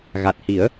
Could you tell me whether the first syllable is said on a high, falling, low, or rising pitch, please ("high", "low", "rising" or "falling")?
low